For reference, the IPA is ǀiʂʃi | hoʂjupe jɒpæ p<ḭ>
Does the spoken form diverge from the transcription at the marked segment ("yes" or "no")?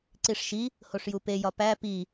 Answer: yes